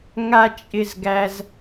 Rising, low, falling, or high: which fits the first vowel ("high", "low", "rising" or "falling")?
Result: high